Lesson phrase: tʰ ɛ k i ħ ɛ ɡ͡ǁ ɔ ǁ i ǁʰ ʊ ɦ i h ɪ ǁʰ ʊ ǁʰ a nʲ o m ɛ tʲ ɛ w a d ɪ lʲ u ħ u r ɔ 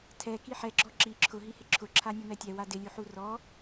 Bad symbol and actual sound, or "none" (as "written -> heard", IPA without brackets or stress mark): none